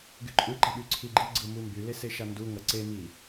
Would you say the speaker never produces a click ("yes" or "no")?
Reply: no